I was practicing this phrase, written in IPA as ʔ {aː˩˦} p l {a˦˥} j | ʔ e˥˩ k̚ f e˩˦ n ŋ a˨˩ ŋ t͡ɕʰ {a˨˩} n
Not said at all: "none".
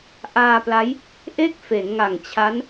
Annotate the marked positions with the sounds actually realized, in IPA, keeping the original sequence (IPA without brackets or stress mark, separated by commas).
aː˧, a˦˥, a˦˥